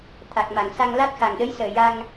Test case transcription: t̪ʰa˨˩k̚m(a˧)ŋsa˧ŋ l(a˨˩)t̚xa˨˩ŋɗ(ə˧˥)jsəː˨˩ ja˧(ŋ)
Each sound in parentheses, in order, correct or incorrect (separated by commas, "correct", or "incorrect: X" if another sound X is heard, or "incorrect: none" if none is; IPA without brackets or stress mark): incorrect: a˨˩˨, incorrect: a˦˥, correct, correct